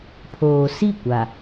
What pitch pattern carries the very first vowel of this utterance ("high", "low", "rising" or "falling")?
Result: low